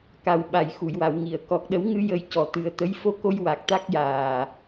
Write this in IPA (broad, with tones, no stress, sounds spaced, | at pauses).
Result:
k a˨˩ w ɓ a˨˩˨ j x u˨˩˨ j w a˨˩˨ w ŋ i˨˩˨ ə̯ k ɔ˨˩ k̚ ɗ ə˨˩˦ w ŋ ɨ˧ j ə˨˩˦ j c ɔ˨˩ t̪ ɨ˨˩˦ ə̯ t̪ ə˧˥ j f o˧˥ k o˧ j w a˨˩ k̚ t̪ a˦˥ k̚ j aː˨˩